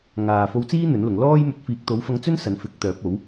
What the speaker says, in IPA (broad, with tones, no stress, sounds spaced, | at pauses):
ŋ aː˨ f o˧ w t͡s iː˥ n̪ ɵ˨˥ n l ʊ˨˧ ŋ l ɔː˥ j m ɵ˧ t̚ f iː˨ k̚ t̪ o˨˥ w f ɐ˧ ŋ t͡s ɵ˥ n s ɐ˨˥ n f ɪ˨˥ k̚ t̪ œː˨˥ p̚ o˨˥ w